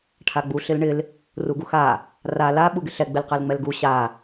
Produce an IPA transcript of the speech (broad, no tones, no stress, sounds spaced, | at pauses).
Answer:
ʈʰ a ɡ͡b u ɬ ɪ l ɳ ɪ l | r u ɡ u x a | r a l a ɓ u ɡ ɪ ɬ ɛ ɡ͡b ɪ l q ɛ l ŋ͡m ɛ l ɡ u ɕ a